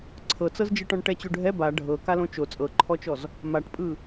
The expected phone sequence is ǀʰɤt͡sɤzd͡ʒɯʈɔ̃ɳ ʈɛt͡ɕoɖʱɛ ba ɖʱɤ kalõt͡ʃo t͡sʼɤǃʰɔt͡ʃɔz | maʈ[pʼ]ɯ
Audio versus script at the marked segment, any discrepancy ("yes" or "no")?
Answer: no